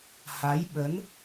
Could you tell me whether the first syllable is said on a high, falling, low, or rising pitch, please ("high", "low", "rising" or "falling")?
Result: rising